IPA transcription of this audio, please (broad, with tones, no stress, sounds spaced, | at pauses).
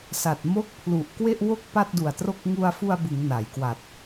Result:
s a˨˩ t̚ m o˥˩ k̚ pʰ l u˨˩ ʔ k w e˥˩ ʔ w o˥˩ k̚ p a˥˩ t̚ d u˨˩ a̯ t r o˥˩ k̚ ŋ u˧ a̯ f u˧ a̯ b ɯ˩˦ ŋ n a˩˦ j k w a˨˩ t̚